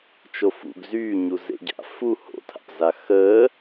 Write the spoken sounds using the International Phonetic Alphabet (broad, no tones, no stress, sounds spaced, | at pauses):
t͡ʃ o f ṵ ɡ z yː ɲ u z ḛ ɟ a̰ f u h o̰ tʰ a̰ p z a x əː